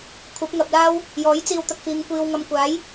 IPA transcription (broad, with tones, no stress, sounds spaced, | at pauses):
kʷʰ ɐ˨˥ p̚ ŋ ɐ˨ p̚ l aː˥ w | j ɔː˨˥ j t͡s iː˧ w t̪ ɐ˧ k̚ f iː˨˧ ŋ kʷ iː˨ w ŋ ɐ˨ m kʷ aː˨˥ j